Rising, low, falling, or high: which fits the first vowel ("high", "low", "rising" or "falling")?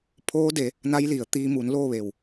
rising